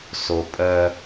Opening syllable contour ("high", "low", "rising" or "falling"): low